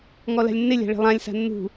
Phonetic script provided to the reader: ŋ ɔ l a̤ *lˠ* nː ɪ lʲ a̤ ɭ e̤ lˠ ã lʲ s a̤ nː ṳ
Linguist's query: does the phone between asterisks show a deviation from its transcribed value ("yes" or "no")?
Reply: yes